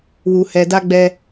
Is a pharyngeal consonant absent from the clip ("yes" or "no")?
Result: yes